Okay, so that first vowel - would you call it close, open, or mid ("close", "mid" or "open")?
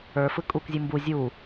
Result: mid